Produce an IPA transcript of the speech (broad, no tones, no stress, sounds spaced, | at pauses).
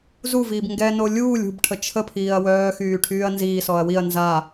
z u v iː b ŋ ɡ ɛ n o lʲ uː lʲ ṳ b ʈʰ ə t͡ʃʰ ə pʰ iː ɐ̯ w œː x yː ʈʰ yː ɐ̯ n z iː s ɔ ɐ̯ w i ɐ̯ n z a